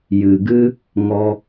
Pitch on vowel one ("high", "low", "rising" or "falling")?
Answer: low